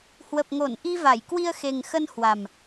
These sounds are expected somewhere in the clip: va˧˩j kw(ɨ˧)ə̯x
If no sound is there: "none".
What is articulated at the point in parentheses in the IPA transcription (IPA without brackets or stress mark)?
i˧